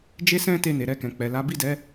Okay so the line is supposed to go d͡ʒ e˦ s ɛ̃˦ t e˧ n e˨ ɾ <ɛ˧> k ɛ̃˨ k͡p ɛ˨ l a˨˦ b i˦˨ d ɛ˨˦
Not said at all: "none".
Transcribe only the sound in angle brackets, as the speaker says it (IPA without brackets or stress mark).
ɛ˧